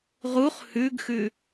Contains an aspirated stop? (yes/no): no